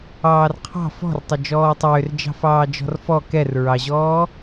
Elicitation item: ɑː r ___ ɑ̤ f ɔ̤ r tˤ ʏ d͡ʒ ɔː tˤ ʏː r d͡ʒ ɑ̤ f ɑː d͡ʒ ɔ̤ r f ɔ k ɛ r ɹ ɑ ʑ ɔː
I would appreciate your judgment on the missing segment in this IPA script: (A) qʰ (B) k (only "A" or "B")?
A